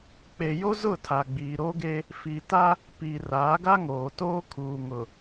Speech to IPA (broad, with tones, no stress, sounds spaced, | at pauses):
k͡p e˨ j o˦ z ʊ˦˨ tʰ a˨ ɡ͡b iː˨ ɾ o˦ ɡ e˦ | f i˨ t a˦ | p i˨ r aː˨˦ ɡ a˦ ŋ oː˨ t oː˦ kʰ uː˨ ŋ ʊ˨